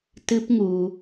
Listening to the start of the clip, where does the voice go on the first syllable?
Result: high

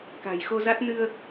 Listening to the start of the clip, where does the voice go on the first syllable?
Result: low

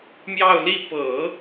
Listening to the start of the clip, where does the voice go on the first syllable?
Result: falling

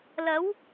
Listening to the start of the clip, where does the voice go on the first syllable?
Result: rising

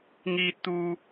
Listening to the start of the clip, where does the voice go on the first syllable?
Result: high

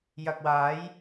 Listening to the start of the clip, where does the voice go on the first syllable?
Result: low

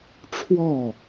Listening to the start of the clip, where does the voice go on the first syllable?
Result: falling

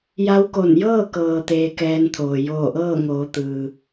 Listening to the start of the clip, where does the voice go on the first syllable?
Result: rising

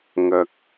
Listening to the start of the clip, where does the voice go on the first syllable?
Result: low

